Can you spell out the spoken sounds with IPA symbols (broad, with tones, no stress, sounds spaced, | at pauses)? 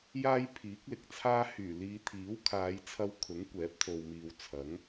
j aː˥ j pʰ iː˨˥ k̚ l ɪ˨ k̚ t͡sʰ aː˥ h yː˨˩ l iː˨˧ t̪ʰ iː˨˥ w kʰ aː˨˧ j t͡sʰ ɐ˧ w kʰ ʊ˨˥ ŋ kʷ ɛː˨˥ p̚ t̪ʰ o˨ w m iː˨ w t͡sʰ ɐ˨˥ ŋ